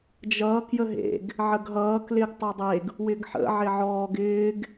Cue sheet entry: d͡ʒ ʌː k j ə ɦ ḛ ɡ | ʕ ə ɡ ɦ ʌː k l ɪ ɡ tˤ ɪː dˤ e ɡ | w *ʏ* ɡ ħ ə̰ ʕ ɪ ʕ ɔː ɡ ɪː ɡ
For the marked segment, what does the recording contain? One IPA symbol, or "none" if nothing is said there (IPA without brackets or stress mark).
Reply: ɪ